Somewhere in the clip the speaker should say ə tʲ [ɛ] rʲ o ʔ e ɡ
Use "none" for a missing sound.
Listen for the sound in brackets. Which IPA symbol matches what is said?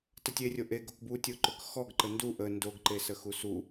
e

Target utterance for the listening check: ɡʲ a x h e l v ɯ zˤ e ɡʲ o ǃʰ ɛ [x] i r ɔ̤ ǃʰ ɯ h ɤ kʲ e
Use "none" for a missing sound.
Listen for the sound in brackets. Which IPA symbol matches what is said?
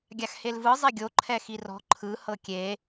x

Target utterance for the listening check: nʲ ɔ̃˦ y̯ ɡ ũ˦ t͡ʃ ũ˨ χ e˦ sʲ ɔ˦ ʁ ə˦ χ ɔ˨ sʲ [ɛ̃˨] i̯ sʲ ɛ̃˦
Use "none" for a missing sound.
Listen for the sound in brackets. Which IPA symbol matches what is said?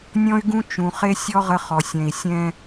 ɛ̃˨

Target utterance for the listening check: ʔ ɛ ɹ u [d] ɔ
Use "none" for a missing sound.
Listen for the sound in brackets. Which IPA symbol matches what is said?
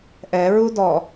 d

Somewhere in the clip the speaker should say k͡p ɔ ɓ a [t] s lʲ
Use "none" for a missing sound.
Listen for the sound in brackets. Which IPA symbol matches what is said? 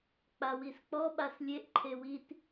none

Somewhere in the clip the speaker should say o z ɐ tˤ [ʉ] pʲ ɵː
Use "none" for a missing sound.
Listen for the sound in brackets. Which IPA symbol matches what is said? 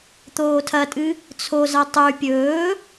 ʉ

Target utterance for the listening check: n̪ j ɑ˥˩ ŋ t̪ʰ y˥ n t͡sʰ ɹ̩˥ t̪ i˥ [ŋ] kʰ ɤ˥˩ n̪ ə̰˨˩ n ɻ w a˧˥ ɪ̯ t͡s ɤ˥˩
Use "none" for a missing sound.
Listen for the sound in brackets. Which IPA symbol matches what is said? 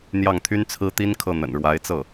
n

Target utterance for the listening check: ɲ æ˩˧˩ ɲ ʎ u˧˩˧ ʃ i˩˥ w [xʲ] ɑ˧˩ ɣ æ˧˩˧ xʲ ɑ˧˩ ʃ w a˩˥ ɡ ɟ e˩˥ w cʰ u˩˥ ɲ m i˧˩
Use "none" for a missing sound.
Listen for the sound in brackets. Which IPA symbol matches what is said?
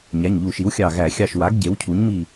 xʲ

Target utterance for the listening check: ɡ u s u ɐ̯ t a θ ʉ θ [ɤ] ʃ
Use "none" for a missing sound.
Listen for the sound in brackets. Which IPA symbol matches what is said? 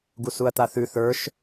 ə˞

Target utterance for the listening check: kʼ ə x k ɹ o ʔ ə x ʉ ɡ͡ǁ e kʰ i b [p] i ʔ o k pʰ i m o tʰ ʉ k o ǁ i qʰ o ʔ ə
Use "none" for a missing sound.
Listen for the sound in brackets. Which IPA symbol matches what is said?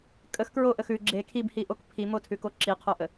h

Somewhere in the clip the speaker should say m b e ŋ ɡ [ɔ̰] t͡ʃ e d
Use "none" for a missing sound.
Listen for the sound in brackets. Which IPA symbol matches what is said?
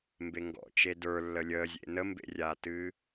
ɔ̰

